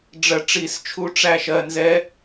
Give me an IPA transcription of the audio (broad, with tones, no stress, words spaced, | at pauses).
ɖ͡ʐɜ˥˨ ʈ͡ʂi˥˨st͡ʃʰu˦˥ ʈ͡ʂæ˥˨ʃ ɜ˧˥˧nzɛ˦˥